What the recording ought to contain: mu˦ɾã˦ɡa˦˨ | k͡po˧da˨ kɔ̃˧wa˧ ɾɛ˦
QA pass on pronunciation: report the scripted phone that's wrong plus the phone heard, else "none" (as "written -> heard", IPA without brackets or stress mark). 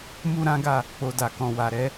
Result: none